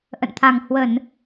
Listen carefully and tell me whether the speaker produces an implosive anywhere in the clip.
no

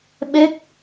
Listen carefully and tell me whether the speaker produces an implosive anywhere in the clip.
yes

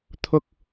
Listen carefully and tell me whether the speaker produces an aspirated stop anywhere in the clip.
yes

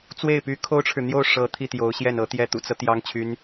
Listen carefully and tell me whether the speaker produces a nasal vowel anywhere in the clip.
no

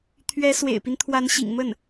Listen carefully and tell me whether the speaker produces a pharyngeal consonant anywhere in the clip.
no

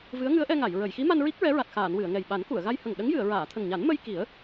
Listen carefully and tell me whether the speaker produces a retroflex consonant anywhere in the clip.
no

